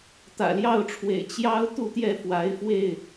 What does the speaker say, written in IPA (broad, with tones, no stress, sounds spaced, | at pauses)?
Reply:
t̪ ä̰˨˩ l j ɑ˥˨ ʊ̯ ʈ͡ʂʰ w ḛ˨˩ ɪ̯ t͡ɕ j ɑ˦ ʊ̯ t̪ u˥˨ t̪ j ɛ˥˨ f w a˨˦ ɪ̯ f w e˥˨ ɪ̯